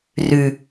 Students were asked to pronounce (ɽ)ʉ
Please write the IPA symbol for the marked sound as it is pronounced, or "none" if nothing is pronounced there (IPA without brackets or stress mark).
r